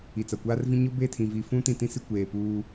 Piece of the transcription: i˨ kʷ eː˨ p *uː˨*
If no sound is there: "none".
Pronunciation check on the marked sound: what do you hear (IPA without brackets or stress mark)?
uː˦